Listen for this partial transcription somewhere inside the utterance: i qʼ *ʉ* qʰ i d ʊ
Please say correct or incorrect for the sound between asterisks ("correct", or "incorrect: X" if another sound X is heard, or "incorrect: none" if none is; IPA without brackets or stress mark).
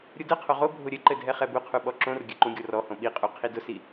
incorrect: u